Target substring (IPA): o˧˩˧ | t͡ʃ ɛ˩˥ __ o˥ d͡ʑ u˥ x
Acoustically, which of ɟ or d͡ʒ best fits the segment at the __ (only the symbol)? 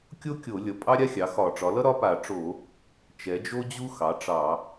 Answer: d͡ʒ